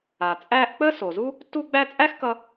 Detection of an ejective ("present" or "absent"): present